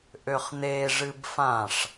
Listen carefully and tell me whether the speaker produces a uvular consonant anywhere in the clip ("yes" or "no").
yes